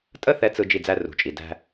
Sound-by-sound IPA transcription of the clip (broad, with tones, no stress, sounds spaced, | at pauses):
tʼ ə˦ θ ɛ˨˦ t͡s ɯ˨ d͡ʒ i˦˨ d͡z æ˦ r ṳ˨ t͡ʃʼ i˨ d æ̤˦